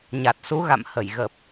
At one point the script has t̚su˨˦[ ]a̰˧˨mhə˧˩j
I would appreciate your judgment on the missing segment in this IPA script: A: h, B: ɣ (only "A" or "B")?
B